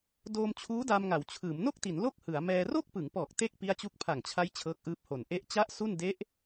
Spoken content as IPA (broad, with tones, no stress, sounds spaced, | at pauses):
d oː˧ m t͡ɕʰ uː˦˥ d a˧ m ŋ a˩˦ w t͡ɕʰ ɯː˩˦ m n o˥˩ k̚ t i˩˦ n l o˥˩ k̚ h ɯ˩˦ a̯ m ɛː˧ r o˥˩ k̚ p ɯ˩˦ ŋ p ɔː˨˩ k̚ t e˥˩ k̚ p i˦˥ a̯ t͡ɕ u˦˥ k̚ pʰ a˨˩ ŋ t͡ɕʰ a˦˥ j t͡ɕʰ ɤː˦˥ k̚ ʔ ɯː˦˥ p̚ h o˨˩ n ʔ e˦˥ ʔ t͡ɕ a˦˥ ʔ s u˥˩ n d e˦˥ ʔ